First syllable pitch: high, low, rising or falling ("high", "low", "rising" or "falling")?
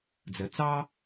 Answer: low